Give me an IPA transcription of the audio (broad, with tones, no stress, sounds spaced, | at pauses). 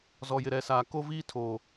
z ɔ˨ j ɪ˨ ɾ ɛ˨ s aː˨ k o˦ v iː˦ tʰ oː˨